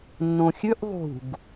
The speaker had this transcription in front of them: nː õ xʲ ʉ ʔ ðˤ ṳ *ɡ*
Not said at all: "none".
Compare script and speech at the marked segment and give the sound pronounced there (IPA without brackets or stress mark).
ɡ